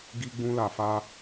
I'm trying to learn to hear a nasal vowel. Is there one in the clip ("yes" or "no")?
yes